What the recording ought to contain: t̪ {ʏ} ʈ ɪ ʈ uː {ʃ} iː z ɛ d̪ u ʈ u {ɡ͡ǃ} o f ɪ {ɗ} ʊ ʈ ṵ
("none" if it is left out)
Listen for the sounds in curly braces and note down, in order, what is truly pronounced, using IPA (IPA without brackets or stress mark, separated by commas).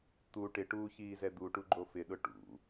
u, ç, ɡ͡ǃ, ɗ